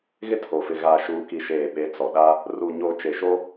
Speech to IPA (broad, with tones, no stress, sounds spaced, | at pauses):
ɣ ɪ˦ tʰ o˨ f ɪ˨ ɣ aː˨ ʃ uː˨ k i˨ ʃ eː˨ ɓ e˨˦ t͡s ɔ˨ ɗ a˦ | r u˨ ɲ o˨ t͡ʃ e˨ ʃ o˦